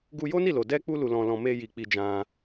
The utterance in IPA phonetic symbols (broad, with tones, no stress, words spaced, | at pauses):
ɡu˧jo˦ni˦˨ lo˨ dɛ˧k͡pu˧ lu˧lɔ̃˧lɔ̃˧ me˧ji˨ k͡pi˧d͡ʒã˧